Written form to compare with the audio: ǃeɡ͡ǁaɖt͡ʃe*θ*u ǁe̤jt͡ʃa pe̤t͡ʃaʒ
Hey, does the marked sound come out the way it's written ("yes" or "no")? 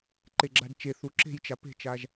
yes